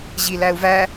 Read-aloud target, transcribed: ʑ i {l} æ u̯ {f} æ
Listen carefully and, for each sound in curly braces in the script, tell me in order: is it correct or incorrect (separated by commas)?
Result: correct, incorrect